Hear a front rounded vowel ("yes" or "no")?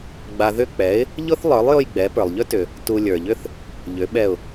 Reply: yes